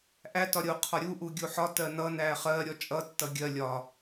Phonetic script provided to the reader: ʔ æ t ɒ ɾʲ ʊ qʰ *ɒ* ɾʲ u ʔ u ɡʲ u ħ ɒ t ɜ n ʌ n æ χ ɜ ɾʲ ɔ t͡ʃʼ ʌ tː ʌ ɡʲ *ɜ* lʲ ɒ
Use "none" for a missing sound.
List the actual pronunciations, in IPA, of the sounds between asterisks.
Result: ɒ, ɜ

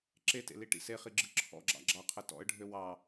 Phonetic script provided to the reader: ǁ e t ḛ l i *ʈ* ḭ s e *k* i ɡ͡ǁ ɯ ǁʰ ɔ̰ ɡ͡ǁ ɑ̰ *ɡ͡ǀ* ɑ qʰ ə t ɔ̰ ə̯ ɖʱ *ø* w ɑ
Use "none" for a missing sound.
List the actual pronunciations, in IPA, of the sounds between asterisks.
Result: ʈ, χ, ɡ͡ǁ, ø

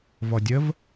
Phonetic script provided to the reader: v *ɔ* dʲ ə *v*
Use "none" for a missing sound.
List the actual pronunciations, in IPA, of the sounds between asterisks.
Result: ɔ, v

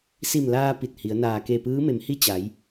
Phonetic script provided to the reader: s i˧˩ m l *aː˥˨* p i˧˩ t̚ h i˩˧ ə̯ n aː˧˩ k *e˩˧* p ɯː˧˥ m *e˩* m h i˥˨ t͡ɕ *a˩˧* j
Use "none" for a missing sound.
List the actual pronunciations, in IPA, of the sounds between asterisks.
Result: aː˧, e˧˩, e˩˧, a˩˧

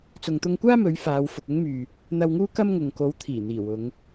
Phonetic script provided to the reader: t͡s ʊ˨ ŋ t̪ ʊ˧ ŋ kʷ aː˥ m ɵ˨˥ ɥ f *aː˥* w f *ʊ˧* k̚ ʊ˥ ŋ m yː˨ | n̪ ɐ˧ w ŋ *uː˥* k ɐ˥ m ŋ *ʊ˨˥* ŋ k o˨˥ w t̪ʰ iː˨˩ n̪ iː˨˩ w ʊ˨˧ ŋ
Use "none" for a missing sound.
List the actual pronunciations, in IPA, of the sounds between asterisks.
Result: aː˨˧, ʊ˨, uː˥, ʊ˨

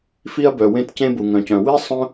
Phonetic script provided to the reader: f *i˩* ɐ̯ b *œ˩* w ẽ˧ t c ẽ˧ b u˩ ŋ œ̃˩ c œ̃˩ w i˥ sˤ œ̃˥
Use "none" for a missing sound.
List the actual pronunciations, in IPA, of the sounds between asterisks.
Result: i˧, œ˩

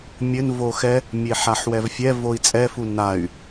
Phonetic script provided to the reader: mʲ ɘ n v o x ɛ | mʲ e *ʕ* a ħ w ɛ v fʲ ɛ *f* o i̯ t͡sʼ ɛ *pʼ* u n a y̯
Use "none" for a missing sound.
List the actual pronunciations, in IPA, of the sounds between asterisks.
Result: ħ, v, f

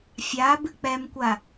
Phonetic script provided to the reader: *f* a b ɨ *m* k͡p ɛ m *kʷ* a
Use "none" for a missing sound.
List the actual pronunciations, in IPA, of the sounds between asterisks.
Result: fʲ, none, kʷ

